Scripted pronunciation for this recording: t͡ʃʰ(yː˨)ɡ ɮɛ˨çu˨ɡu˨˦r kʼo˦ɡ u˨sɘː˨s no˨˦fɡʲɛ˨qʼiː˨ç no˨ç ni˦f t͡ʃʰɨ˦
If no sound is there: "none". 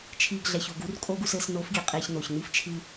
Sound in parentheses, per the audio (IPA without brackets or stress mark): iː˨